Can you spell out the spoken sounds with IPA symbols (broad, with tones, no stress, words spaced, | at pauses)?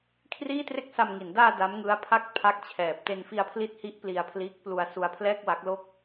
kʰriː˥˩tre˥˩k̚sa˧mŋi˩˦n daː˧ da˦˥mŋɯ˦˥a̯pʰa˥˩k̚ pʰa˦˥k̚t͡ɕʰɛː˨˩p̚ te˧nfi˧a̯pʰli˦˥t̚hi˦˥ʔ pli˧a̯pʰliː˦˥k̚plu˧a̯ su˧a̯pʰlɛː˥˩k̚wa˦˥k̚lo˥˩k̚